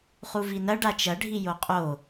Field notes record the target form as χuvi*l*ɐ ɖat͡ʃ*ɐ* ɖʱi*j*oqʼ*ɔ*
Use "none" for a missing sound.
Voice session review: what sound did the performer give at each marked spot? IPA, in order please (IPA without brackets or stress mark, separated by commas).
n, ɐ, j, o